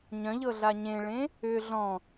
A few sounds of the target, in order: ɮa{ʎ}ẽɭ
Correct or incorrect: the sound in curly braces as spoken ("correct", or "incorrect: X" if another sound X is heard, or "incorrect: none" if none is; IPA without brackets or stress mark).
incorrect: ɲ